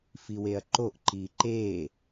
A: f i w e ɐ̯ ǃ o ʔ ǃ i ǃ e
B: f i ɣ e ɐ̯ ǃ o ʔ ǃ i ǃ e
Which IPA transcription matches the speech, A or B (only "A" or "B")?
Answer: A